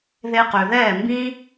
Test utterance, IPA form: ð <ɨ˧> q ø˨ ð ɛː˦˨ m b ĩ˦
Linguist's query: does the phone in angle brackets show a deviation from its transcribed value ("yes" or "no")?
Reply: yes